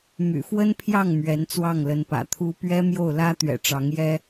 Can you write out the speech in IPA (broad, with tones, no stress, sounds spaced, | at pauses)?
m y̰˨˩ f w ə˥ n pʰ j ɑ˥˩ ŋ m ɥ ɛ˧˥ n t͡s w ɑ˥˩ ŋ l ə˧˥ n p ä̰˨˩ t̪ʰ u˥ p ɥ ɛ˥ m j o˥˩ ʊ̯ l ä˥ t̪ ɥ ɛ̰˨˩ ʈ͡ʂ ɑ˧˥ ŋ j ɛ˥